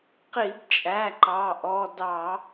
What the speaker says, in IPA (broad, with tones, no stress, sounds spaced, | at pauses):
q i˧˩˧ b t͡ʃʼ æ˩˧˩ ǃ ɑ˩˧˩ ʔ ɔ˩˧˩ d ɑ˧˩˧